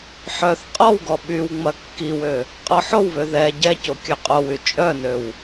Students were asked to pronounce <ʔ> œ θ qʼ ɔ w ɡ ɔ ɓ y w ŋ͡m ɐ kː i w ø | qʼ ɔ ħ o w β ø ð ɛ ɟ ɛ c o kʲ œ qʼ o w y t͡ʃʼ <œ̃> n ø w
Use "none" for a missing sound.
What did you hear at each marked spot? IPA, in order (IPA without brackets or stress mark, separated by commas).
ħ, œ